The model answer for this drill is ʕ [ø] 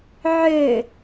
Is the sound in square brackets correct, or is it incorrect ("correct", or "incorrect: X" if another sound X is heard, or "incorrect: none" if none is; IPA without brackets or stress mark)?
correct